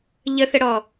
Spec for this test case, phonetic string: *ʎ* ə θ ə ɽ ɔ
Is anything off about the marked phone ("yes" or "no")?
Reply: no